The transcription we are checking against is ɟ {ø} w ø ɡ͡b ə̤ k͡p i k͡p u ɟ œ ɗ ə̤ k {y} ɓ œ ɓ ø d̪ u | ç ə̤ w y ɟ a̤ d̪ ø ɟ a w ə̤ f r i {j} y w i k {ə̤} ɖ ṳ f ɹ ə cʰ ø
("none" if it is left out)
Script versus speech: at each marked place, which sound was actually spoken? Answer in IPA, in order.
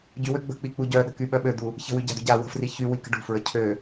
y, y, ç, ə̤

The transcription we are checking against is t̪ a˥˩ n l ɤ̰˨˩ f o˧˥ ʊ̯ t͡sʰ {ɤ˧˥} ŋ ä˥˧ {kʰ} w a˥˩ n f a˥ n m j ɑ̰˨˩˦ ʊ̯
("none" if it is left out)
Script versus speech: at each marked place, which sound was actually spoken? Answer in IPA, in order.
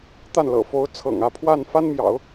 ɤ̰˨˩, pʰ

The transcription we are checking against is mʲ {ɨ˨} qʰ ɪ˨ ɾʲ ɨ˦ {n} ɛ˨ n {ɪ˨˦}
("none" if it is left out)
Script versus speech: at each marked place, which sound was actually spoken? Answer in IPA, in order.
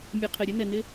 ɨ˨, n, ɪ˦

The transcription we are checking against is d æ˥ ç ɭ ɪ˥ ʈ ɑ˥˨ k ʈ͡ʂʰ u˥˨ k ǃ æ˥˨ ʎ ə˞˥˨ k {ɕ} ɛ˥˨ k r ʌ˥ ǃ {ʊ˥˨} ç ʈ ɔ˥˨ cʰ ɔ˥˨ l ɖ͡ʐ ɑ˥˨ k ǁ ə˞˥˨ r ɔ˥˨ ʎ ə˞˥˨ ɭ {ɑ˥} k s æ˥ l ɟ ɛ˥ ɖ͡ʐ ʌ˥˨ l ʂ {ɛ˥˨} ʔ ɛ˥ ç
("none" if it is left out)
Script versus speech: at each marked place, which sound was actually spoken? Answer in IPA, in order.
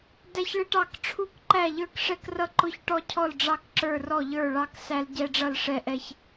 ʂ, ʊ˥˨, ɑ˥, ɛ˥˨

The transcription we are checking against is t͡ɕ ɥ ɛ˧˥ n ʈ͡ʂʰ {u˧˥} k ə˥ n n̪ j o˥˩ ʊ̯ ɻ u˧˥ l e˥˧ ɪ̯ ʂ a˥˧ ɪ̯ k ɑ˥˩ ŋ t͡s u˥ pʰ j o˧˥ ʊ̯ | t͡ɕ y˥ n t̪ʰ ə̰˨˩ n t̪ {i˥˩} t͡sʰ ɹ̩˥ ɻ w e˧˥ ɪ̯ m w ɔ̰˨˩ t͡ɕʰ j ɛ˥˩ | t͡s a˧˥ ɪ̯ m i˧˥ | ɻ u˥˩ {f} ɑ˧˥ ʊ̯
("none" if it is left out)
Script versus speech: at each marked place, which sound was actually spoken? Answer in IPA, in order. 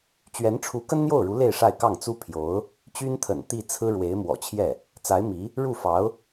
u˧˥, i˥˩, f

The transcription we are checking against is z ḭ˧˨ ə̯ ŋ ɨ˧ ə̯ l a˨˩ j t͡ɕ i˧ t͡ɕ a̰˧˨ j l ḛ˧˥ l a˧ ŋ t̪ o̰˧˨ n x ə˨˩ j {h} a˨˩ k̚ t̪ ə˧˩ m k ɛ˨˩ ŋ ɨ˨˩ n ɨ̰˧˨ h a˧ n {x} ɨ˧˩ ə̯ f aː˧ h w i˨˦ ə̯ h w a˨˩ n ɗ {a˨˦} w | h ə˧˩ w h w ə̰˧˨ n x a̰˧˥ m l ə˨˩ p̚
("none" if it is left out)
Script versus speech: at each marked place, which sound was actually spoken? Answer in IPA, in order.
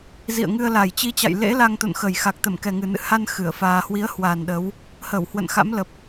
x, x, ə˨˦

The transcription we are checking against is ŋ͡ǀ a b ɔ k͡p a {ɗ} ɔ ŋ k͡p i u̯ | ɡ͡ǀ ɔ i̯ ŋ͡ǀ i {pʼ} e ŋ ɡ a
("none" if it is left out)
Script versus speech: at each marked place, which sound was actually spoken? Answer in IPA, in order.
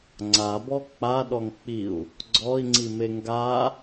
ɗ, m

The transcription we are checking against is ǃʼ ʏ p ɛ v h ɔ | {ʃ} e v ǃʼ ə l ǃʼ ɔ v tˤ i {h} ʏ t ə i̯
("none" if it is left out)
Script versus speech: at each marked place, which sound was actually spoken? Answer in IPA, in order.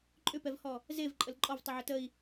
z, ʕ

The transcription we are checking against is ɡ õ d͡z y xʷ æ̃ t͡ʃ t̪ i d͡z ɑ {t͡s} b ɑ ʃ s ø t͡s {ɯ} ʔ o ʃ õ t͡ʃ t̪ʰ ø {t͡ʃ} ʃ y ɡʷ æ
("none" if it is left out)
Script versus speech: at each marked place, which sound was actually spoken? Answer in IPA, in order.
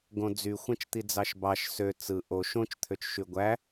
ʃ, ɯ, t͡ʃ

